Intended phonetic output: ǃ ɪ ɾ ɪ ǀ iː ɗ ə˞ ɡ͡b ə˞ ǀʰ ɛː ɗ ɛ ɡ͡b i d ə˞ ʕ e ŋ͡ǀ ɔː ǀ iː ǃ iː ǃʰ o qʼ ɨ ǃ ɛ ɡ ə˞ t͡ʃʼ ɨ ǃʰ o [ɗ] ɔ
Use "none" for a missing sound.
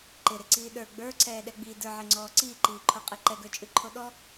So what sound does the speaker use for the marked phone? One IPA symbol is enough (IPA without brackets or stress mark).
ɗ